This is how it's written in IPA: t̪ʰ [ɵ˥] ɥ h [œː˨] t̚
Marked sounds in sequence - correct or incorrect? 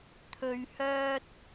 incorrect, incorrect

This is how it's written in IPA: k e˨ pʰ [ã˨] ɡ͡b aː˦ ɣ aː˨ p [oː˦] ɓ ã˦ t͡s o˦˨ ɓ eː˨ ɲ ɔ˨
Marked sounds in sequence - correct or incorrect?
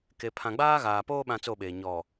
correct, correct

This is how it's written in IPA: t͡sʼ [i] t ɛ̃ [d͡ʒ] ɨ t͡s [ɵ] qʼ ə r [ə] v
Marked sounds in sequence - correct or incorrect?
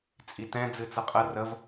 correct, incorrect, incorrect, correct

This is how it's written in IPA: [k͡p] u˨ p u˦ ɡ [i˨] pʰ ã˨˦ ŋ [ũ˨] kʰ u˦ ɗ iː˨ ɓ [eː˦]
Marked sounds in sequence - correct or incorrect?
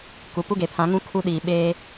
incorrect, incorrect, incorrect, correct

